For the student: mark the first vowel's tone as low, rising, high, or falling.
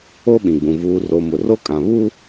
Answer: high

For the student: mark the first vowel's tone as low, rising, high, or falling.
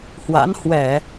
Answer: rising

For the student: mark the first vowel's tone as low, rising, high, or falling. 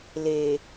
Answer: low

